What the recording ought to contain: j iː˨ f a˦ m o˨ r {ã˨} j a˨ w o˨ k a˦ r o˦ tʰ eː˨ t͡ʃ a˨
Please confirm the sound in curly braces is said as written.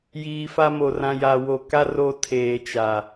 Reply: yes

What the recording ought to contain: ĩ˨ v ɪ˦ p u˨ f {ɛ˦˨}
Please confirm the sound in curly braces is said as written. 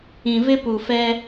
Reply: no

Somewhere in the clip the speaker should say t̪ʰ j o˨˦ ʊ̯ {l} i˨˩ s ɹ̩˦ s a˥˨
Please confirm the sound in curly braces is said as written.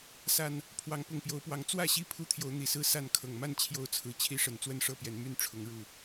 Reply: no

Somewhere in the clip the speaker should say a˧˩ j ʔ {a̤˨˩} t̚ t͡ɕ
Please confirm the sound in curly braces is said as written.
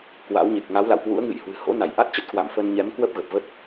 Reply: no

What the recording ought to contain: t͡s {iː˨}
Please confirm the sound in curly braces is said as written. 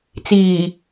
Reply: yes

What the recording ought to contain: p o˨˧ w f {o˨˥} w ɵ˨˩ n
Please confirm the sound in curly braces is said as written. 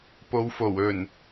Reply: no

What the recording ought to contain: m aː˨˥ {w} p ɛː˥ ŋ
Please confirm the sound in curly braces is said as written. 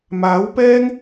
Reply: yes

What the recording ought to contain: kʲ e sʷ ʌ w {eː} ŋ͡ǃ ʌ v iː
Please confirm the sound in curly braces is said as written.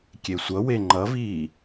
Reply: no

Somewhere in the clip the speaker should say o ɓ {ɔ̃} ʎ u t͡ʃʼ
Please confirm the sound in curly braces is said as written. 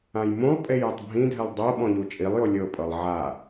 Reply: yes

